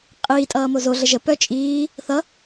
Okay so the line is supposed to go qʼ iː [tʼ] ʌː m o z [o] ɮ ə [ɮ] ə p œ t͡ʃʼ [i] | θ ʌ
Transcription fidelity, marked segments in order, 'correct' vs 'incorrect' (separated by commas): correct, correct, incorrect, incorrect